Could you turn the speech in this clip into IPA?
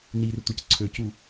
nir tʷəc ǀʰøcu

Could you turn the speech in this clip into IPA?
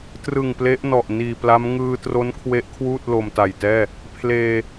trɯ˨˩ŋ ple˦˥ʔnɔ˨˩ʔ niː˨˩pla˦˥m ŋɯː˧ tro˦˥nkʰwe˦˥ʔkʰwuː˥˩t̚ lo˧mta˨˩jtɛː˥˩ | pʰleː˧

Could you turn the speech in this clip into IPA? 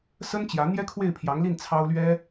sə˥nt͡ɕjä˧˥ n̪jɛ˥kʰwe˥˩ɪ̯pʰjɑ˧˥ŋli˥˩n t͡sʰɑ˥ʊ̯lɥɛ˥

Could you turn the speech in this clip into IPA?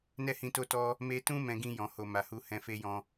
nɛ˦hĩ˧to˦tɔ˦ | me˧tũ˦ mɛ̃˧ɡĩ˧jɔ̃˨ho˨ ma˨hu˧ hɛ̃˧fe˦jɔ̃˦

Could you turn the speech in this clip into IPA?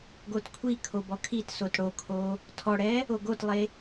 ɡotkʷʰikʰo bɔkʰitsot ɽokʰo | tʰɔɽɛ | oɡotlˠe

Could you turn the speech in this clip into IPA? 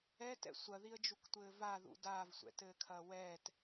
ɛtɛ̰ sʷɐðiə̯d͡ʒuktʷɘː vaðṵ daːvsʷɛ̰tɘːkʰɐː wɛːt

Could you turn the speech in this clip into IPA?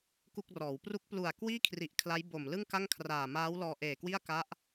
ku˥˩k̚rɔː˩˦w pru˦˥k̚plu˨˩a̯kwiː˥˩kʰri˨˩ʔ kʰla˦˥jbo˨˩m lɯ˥˩ŋka˥˩ŋkʰraː˨˩ maː˦˥wlɔː˧ʔeː˨˩kwi˥˩a̯ ka˦˥ʔ

